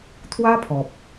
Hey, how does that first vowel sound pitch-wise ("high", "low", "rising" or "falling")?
high